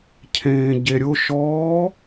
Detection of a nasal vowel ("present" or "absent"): present